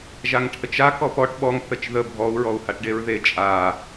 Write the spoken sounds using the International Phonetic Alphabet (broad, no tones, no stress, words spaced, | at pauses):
ʒaŋʈʰət͡ʃa kɔpɔʈ ɓɔŋ θət͡ʃðə bʱɔu̯ ɹɔu̯haʈɖeɹðe t͡ʃʼa